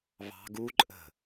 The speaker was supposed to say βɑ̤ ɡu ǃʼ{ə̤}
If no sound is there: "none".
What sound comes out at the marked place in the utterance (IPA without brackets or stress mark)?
ə̤